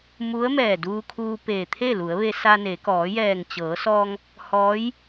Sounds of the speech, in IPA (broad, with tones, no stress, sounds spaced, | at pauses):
m u˧˥ ə̯ m ɛː˧˩ d uː˧ kʰ uː˧ p eː˧˩ t̪ʰ e˥˨ l u˩˧ ə̯ ʋ e˧ s a˧ n e˩˧ k ɔː˩˧ j ɛː˧˩ ŋ t͡ɕ ɤː˩˧ s ɔː˧ ŋ | h ɔː˧˥ j